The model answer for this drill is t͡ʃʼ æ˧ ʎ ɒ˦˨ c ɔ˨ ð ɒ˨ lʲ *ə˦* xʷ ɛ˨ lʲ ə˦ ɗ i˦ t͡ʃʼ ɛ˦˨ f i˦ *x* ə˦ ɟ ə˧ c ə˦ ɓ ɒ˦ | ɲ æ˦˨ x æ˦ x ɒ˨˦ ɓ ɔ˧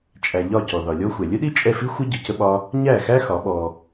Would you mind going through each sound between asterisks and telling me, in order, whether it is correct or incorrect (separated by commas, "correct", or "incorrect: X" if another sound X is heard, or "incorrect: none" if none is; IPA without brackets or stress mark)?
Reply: incorrect: ɔ˦, incorrect: xʷ